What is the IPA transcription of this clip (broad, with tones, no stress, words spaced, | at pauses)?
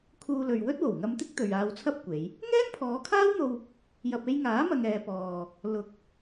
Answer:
kʰuː˧lɵ˨ɥwɵ˥t̚ wo˨˩wŋɐ˧mt̪ɪ˥k̚ t̪ɵ˨ɥaː˧wt͡sʰɐ˥p̚kʷe˨˧j | ŋɛː˥npʰɔː˨˧kʰaː˥wn̪o˧w | jɐ˨p̚e˧jŋaː˨˥ mɐ˧ŋɛː˨˧pɔː˨ | lʊ˨k̚